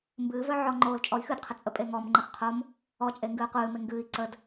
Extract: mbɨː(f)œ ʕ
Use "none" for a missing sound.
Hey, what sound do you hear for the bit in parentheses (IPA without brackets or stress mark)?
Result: v